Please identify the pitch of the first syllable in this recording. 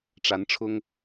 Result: rising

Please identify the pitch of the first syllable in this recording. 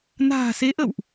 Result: low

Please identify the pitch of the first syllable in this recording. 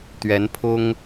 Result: rising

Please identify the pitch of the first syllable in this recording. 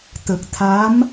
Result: low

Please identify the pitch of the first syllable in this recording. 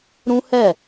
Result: high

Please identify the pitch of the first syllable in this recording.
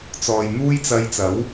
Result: low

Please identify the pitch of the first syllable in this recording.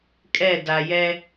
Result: falling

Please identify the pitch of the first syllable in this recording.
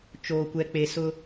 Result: low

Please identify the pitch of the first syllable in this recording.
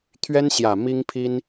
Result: high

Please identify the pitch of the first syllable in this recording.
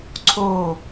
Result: low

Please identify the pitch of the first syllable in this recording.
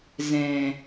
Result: low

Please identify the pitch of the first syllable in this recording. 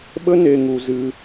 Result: high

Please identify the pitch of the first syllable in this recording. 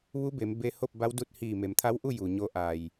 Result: rising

